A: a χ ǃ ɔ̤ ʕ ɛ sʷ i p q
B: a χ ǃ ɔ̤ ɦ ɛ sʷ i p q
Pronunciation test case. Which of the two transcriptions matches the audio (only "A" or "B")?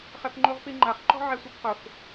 A